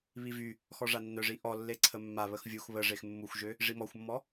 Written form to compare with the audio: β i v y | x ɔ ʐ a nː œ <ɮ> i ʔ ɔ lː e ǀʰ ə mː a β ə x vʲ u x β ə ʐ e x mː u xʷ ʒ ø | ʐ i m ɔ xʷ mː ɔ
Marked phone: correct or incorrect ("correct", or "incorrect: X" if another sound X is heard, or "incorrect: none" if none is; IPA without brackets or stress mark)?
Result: incorrect: ʐ